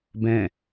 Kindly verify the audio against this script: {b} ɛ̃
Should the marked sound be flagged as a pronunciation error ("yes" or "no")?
no